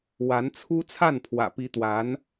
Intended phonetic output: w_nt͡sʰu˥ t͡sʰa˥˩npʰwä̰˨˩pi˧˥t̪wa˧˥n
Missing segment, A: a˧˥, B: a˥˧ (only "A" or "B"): A